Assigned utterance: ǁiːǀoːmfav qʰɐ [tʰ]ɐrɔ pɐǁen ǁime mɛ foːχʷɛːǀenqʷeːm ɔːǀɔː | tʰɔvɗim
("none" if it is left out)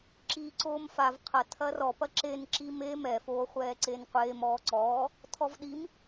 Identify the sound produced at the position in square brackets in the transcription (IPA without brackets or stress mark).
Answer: tʰ